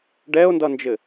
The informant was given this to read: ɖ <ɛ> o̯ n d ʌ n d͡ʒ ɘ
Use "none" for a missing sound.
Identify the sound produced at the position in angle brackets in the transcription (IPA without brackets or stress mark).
ɛ